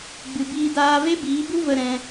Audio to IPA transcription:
ɡ͡b ɨ˨ b iː˧ d aː˧ v e˦ b iː˨˦ b u˦ v ə˧ ɾ ɛ̃˧

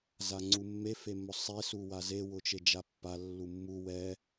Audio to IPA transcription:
z a ŋ͡ǀ u mː e f e m ʊ sˤ e s u w a z e w ʊ t͡ʃ e d͡ʒ a pː a lː u mː u w ɛ

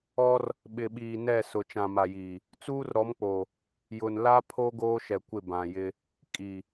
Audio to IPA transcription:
ɔ˦ r | ɓ ɪ˨ ɓ iː˨ n ɛ˦˨ s ʊ˨ t͡ʃ ã˨ m a˨ j iː˨ | t͡s uː˦ r ɾ ɔ˨˦ m k͡p o˨ | j ʊ˨ n l a˦ pʰ o˦ ɡ oː˦ ʃ ɛ˨ kʷ ɪ˦˨ b ã˨ j ɪ˦ | kʼ i˨

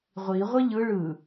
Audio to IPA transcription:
ʁʷ i ʁʷ i ʎ ɯ ɭ ɯ

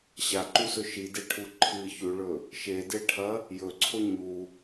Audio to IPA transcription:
ɕ a ǃ u s ɵ ʃ i d e ʈʰ u ǃʰ ɨ ç ʉ ɭ ɵ | ʃ e d e ʈʰ ɐ | j ɵ ǀʰ o ɲ u

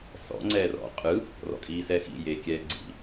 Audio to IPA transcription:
s ɔ̰ ŋ͡ǀ ɛː r ɔ̰ qʼ ɯ | r ɔ̰ kʼ iː s ɛː x ḭ j eː kʲ ɛː ɡ͡ǀ ḭ

